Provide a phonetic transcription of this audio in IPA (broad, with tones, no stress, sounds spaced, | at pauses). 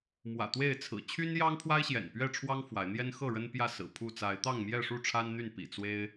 m w ä̰˨˩ t̪ w e˥˨ ɪ̯ t͡sʰ ɹ̩˨˩ t͡ɕʰ y˦ n j ɑ˦ ŋ pʰ w a˦ ɪ̯ ɕ j ɛ̰˨˩ n p ɥ ɛ˥˨ ʈ͡ʂʰ w ɑ˦ ŋ f w a˨˦ ɪ̯ n̪ j ɛ˦ n x ɤ˥˨ ɻ ə˦ n p j ä˥˨ s ɹ̩˨˩ pʰ u˥˨ t͡s a˨˦ ɪ̯ t̪ ɑ˥˨ ŋ m j ɛ˥˨ ʂ u˥˨ ʈ͡ʂʰ a˦ n n̪ y˥˨ n p ḭ˨˩ t͡s w e˦ ɪ̯